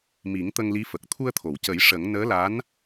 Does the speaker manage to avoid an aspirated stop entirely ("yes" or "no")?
no